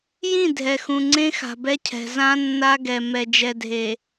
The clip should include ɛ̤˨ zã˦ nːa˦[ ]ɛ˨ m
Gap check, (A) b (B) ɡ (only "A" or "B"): B